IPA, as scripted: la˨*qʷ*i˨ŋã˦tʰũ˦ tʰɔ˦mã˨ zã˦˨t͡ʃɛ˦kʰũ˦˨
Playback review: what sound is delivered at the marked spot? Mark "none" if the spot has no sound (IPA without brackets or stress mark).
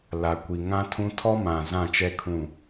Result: kʷ